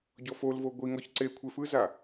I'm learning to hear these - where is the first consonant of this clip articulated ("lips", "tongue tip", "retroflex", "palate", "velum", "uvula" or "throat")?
palate